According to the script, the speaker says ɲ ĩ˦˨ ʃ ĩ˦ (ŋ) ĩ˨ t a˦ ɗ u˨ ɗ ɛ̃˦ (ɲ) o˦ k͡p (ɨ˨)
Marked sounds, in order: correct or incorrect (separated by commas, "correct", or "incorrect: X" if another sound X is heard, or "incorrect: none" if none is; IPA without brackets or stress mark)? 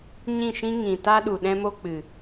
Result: correct, incorrect: m, correct